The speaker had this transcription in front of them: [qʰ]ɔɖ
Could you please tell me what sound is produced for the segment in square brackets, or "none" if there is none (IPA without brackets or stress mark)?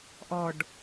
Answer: ʔ